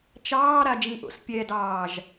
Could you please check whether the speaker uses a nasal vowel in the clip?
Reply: yes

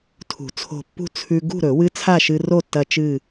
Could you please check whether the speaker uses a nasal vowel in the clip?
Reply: no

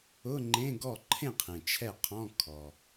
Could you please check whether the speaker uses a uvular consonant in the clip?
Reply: yes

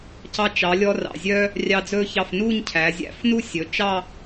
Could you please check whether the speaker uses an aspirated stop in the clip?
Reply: yes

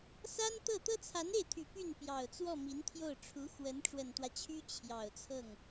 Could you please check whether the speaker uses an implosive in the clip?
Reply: no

